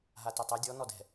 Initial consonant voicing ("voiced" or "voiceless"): voiced